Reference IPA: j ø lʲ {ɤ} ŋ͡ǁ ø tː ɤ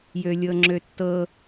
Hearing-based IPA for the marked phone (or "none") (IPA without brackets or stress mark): ɤ